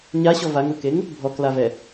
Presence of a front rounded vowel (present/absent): absent